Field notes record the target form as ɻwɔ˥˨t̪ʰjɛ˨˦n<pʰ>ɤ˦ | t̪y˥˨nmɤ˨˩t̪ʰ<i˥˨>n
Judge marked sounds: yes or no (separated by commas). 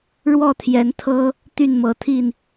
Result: no, yes